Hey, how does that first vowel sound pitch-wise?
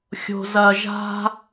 low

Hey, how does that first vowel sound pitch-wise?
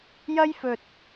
high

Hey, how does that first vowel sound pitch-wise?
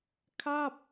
falling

